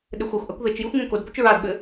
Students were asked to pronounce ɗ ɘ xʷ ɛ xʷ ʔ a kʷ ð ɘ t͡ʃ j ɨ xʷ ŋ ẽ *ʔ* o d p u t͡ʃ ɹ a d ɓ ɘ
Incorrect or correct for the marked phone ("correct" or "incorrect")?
incorrect